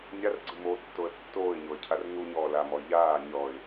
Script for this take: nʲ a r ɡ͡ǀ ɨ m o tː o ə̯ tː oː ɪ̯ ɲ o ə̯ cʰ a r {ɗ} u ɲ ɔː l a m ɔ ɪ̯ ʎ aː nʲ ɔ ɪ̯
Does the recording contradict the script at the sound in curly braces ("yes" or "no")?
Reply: yes